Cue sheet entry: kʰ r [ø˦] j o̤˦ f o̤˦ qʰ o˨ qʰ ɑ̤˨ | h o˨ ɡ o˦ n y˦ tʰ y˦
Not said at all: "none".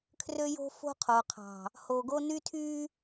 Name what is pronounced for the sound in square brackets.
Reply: ø˦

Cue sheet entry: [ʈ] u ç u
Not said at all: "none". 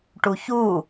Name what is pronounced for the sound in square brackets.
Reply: ʈ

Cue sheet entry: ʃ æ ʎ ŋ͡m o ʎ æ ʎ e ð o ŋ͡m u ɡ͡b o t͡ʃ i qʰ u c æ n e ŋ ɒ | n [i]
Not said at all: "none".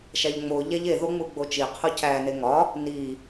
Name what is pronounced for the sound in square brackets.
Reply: i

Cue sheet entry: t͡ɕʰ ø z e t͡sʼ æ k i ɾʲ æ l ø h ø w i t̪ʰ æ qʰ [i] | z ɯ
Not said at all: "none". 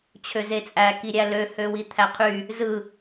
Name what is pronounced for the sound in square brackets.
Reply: y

